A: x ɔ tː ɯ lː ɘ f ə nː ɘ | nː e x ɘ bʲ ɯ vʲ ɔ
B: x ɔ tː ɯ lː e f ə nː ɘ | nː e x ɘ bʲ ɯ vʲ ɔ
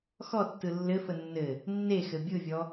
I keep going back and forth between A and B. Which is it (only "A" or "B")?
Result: A